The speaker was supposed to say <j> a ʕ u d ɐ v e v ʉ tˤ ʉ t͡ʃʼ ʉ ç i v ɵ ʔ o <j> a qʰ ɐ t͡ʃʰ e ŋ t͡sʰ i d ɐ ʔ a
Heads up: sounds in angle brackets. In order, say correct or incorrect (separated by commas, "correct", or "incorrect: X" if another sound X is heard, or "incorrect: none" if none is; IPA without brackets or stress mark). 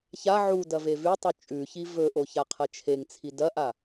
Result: incorrect: ç, incorrect: ç